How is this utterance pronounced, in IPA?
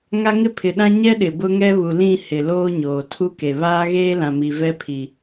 ŋ a˦ ŋ ɪ˦ pʰ ɪ˨ ɗ ã˦ ɲ ɛ˦ ɗ ɪ˨ b ʊ˦ ŋ ɛ˦ β u˨ l ĩ˦˨ h ɪ˨ l oː˦ ɲ oː˨ tʰ u˦ k e˨ β aː˦ ɣ eː˦ l ã˨ m i˨ v ɛ˦ pʰ i˨

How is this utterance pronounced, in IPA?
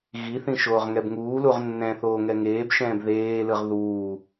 ɣ i θ ĩ ʃ oː ʁ ŋ ɛ b ŋ uː l u ʁ nː ɛ̃ θ oː ŋ ɛ ŋ eː b ʃ ɛ̃ː b ð eː l ɯ ʁ ð uː

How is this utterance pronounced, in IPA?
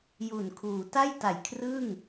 j u˨˩ n kʰ uː˩˦ t a˥˩ j t a˨˩ j kʰ r ɯ˥˩ ŋ

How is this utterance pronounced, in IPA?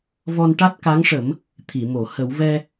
v ɔ˧ n ʈ a˦˥ t̚ k a˧˥ ŋ ʂ ə˨˩˦ m | t̪ʰ i˨˩˨ m o˨˩˨ h ə˨˩˦ w v ɛ˧

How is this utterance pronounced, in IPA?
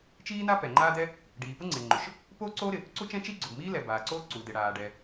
t͡ʃ iː˥ n a˥ p ɛ˩ ŋ͡ǃ aː˥ d ɛ˥ | ɖ iː˩ p ʊ˥ ŋ͡ǀ e˩ ŋ͡ǃ ʊ˩ ʃ | p oː˥ ǀ oː˥ ɾ ɪ˩ | ǀ u˥ t͡ʃ ɛ̃˥ t͡ʃ i˥ ɡ͡ǀ ʊ˩ b m iː˥ l ɛ˩ b aː˩ ǀ oː˥ ǀ u˩ d ɪ˩ ɽ aː˩ ɖ ɛ˩

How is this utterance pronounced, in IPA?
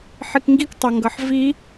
ħ i k ŋ ɡ i k tˤ ʌ ŋ ɡ ʌ ħ v i

